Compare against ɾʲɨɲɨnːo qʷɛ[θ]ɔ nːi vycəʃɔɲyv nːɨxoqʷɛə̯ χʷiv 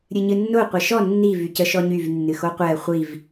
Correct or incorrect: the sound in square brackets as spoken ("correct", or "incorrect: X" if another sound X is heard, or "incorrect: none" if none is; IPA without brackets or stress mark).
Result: incorrect: ʃ